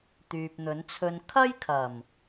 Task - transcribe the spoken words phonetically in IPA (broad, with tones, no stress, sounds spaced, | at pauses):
t̪ yː˨ p̚ n̪ ɵ˨˥ n t͡sʰ ɵ˧ n kʰ ɐ˥ j kʰ ɐ˨˩ m